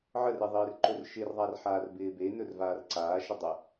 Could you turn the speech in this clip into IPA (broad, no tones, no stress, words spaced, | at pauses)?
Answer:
ʕəreðˤɪːr ǃɵrʃɪrðˤarħaːr bɪːbe nɵrvaːrǀaː ʃədˤə